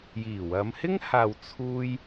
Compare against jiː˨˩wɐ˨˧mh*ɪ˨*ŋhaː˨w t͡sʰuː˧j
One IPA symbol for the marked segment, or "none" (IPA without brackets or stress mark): ɪ˥